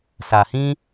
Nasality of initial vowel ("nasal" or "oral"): oral